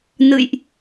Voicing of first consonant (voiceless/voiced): voiced